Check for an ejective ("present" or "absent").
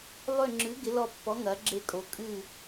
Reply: present